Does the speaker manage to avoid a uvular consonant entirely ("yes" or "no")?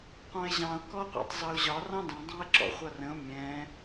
no